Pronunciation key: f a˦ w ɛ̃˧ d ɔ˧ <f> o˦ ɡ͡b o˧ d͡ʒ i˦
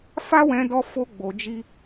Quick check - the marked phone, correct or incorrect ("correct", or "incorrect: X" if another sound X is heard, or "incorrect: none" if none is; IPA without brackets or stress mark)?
correct